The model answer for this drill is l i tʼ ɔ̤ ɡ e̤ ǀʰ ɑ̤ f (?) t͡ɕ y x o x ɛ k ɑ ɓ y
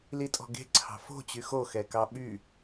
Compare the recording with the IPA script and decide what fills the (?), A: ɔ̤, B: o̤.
B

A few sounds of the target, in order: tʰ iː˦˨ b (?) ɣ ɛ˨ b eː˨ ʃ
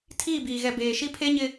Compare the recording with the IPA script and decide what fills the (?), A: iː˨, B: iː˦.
A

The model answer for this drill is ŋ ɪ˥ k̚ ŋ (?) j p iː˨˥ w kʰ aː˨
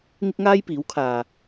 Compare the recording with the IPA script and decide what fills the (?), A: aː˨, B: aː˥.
B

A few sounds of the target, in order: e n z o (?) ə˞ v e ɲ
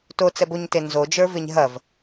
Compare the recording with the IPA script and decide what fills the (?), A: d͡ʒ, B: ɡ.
A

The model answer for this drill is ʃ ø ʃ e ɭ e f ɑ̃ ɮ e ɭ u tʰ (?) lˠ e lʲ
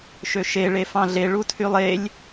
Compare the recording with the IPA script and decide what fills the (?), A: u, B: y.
B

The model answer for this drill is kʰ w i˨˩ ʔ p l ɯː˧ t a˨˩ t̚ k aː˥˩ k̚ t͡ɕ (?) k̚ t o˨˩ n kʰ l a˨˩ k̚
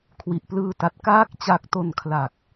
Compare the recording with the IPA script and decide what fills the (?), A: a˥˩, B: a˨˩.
B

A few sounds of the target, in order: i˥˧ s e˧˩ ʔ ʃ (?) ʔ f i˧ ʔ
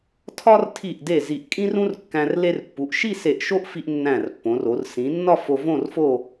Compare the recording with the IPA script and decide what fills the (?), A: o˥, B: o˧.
A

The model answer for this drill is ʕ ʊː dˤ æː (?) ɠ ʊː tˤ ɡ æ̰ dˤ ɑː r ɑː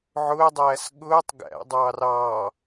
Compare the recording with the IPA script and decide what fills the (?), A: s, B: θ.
A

